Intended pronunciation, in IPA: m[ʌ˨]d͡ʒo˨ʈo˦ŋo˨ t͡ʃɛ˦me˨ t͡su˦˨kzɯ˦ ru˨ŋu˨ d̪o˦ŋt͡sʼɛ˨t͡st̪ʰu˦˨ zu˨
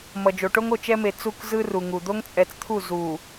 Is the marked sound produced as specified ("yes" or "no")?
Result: yes